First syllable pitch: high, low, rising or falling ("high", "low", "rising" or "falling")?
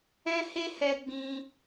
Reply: high